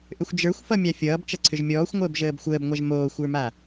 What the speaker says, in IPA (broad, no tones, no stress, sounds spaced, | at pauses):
ʔ ʏ xʷ d͡ʒ ə˞ xʷ f ʌ mʲ a fʲ ʌː b t͡ʃ ʌ ǀʰ ʏ ʒ mʲ ɔː xʷ ŋʷ əː b ʒ əː b xʷ əː b ŋʷ a ʒ m oː xʷ ə˞ m a